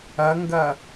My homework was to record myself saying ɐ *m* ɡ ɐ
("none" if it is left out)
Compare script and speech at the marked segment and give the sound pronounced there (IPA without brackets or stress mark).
ŋ